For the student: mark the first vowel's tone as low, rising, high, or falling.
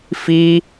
high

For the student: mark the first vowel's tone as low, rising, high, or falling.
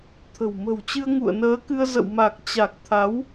low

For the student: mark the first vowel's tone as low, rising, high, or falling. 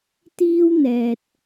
high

